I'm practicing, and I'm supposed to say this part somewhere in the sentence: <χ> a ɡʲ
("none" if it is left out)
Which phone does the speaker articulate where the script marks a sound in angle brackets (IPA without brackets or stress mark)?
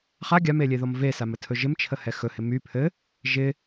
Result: χ